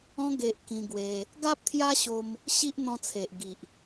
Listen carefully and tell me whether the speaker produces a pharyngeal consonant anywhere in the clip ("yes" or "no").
no